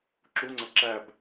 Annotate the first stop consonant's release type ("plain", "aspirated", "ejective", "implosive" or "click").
click